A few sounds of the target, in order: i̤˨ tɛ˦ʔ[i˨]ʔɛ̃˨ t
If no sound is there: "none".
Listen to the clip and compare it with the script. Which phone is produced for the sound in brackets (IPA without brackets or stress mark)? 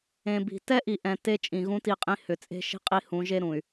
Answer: i˨